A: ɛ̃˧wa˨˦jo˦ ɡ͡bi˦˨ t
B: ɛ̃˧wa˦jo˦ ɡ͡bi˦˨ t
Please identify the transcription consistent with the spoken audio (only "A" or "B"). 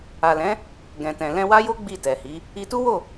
B